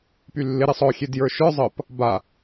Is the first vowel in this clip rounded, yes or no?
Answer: yes